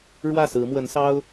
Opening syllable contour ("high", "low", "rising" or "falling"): falling